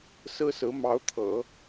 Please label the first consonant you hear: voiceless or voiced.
voiceless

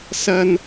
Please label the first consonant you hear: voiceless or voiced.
voiceless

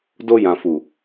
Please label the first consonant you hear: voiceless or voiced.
voiced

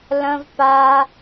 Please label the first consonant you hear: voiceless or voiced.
voiced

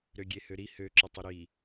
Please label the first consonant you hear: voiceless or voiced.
voiced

